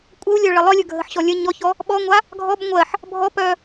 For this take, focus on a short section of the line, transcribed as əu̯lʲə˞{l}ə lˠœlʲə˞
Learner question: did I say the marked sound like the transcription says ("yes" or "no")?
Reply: no